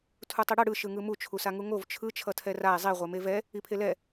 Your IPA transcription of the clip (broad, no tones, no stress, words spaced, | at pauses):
tʰutˤiɽʌ ɽɯ ʃɯŋɯmu t͡ʃʰusaŋuŋov t͡ʃʰɯ t͡ʃʰʌtʰɛrae̯ zˤi ʁʷemevɛ | ipʰelɛ